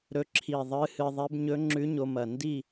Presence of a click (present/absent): present